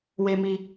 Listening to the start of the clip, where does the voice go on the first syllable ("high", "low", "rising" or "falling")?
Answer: low